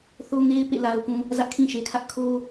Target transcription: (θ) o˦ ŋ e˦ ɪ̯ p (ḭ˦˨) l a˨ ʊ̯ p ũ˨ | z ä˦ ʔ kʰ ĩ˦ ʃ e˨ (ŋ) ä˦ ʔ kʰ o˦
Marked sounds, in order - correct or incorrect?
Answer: correct, incorrect: ḛ˦˨, incorrect: kʰ

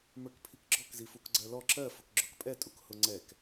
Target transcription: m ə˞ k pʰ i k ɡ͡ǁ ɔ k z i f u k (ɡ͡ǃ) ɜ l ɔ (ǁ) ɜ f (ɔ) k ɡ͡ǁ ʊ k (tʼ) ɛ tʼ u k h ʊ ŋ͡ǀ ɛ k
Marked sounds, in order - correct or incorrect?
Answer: incorrect: ɡ͡ǀ, correct, incorrect: ʊ, incorrect: pʼ

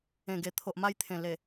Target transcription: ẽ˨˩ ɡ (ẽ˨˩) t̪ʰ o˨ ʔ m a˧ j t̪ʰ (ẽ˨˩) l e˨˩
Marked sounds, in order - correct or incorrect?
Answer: incorrect: e˨˩, correct

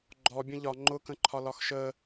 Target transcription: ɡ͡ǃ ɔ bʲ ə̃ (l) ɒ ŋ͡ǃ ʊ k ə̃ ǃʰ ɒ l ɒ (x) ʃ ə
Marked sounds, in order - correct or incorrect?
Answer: incorrect: ʎ, correct

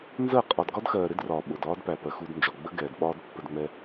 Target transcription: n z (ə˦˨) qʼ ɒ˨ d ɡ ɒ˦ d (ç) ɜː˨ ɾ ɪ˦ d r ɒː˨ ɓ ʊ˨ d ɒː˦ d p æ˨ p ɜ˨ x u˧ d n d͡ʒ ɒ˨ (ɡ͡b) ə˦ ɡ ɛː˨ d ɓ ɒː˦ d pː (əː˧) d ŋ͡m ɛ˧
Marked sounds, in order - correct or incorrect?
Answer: correct, incorrect: x, correct, incorrect: ə˧

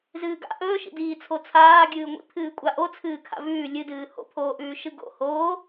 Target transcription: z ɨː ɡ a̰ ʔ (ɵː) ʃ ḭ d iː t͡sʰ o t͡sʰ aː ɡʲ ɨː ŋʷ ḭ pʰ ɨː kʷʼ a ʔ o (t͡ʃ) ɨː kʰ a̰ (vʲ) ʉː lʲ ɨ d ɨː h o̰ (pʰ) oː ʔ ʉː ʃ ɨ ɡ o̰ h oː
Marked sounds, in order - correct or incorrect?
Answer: correct, incorrect: t͡sʰ, incorrect: v, correct

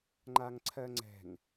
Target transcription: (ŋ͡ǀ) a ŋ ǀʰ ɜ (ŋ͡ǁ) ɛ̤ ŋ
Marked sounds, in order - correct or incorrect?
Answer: incorrect: ŋ͡ǃ, incorrect: ŋ͡ǀ

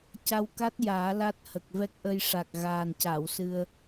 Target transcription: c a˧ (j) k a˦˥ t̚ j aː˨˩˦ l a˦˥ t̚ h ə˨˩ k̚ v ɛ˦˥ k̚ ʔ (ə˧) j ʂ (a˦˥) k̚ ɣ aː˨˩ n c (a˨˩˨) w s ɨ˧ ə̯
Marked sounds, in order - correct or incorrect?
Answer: incorrect: w, correct, incorrect: a˨˩, correct

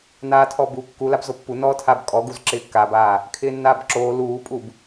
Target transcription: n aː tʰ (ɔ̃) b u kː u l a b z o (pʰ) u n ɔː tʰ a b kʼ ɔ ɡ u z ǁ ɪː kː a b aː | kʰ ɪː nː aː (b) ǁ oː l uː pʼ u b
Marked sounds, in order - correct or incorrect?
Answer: incorrect: ɔ, incorrect: pː, correct

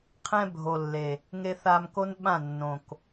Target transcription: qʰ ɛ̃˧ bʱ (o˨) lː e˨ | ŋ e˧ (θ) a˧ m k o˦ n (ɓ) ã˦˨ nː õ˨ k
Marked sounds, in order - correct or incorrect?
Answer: correct, correct, correct

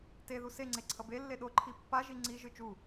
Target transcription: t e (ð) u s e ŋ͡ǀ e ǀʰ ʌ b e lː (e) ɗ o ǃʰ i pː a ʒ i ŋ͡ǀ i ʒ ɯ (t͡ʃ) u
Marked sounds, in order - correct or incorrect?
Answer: correct, correct, correct

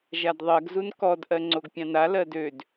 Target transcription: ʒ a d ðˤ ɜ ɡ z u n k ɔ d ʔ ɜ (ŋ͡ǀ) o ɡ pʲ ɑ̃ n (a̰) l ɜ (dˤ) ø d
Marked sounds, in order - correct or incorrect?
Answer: correct, incorrect: a, incorrect: d

